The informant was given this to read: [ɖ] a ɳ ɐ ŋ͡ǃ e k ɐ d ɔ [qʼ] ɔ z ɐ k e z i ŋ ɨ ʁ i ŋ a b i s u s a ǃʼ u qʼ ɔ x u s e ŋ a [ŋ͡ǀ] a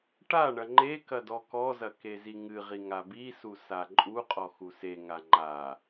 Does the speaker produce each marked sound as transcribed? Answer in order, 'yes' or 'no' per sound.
no, no, no

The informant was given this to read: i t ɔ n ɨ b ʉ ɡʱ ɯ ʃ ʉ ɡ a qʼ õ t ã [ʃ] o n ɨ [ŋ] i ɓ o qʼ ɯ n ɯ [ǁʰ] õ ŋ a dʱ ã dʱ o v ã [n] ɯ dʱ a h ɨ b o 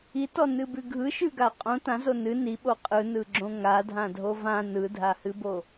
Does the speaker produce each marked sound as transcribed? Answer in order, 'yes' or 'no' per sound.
no, no, no, yes

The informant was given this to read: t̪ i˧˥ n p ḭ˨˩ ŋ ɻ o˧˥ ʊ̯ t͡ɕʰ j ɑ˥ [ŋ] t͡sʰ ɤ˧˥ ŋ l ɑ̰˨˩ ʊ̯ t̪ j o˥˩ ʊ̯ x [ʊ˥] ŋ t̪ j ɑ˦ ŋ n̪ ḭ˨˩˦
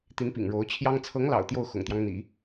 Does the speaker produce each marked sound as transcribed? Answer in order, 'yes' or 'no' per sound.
yes, no

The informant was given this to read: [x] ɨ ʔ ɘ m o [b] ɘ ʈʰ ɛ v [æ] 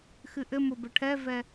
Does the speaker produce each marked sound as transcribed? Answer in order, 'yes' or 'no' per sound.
yes, yes, no

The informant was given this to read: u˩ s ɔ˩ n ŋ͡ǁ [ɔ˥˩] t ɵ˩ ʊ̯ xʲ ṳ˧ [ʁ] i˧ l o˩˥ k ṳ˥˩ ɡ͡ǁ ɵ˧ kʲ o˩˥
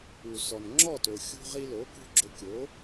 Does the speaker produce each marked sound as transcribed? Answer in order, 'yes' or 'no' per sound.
yes, yes

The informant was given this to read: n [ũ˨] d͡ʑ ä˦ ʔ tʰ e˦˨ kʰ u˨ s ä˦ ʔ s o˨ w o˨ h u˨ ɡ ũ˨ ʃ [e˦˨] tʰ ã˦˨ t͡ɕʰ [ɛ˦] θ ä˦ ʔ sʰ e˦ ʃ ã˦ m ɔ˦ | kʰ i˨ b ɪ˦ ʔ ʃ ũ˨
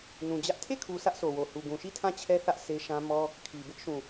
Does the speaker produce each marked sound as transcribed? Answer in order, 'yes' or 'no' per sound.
yes, no, yes

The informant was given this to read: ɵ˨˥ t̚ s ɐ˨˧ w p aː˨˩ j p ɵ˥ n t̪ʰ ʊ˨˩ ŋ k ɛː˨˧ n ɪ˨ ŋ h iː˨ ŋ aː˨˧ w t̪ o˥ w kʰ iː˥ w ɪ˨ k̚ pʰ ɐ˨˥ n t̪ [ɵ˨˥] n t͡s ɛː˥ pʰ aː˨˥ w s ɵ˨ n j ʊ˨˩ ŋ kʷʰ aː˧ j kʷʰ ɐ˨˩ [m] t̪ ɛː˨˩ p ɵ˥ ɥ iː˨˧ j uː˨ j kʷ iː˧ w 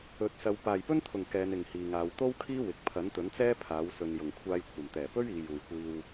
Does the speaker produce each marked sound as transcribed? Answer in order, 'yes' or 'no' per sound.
yes, yes

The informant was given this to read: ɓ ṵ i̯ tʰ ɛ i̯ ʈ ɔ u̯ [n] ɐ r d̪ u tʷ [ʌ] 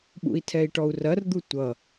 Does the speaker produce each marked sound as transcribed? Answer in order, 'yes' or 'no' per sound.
no, yes

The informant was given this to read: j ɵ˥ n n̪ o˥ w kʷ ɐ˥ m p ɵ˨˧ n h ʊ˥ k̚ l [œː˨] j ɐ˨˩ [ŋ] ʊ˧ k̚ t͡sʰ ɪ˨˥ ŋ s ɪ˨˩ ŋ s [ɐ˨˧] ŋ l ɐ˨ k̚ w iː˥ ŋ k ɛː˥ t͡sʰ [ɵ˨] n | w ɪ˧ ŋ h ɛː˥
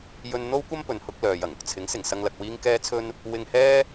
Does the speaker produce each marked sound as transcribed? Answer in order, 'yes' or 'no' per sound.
yes, yes, no, no

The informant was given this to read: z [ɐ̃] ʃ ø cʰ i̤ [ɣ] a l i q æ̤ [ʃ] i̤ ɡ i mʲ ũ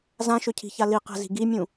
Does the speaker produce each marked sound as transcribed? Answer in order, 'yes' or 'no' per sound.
no, no, no

